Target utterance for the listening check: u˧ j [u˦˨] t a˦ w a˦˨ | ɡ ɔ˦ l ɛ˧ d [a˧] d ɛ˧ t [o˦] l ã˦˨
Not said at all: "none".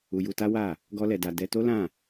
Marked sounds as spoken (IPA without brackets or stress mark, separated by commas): u˧, a˧, o˦